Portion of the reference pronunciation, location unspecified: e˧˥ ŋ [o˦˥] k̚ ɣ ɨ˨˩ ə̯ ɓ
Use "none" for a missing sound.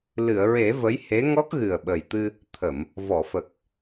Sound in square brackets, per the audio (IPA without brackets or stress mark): ɔ˦˥